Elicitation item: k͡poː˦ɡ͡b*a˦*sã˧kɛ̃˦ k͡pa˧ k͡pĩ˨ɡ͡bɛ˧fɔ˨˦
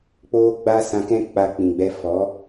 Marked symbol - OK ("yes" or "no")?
yes